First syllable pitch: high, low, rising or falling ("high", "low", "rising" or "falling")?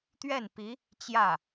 falling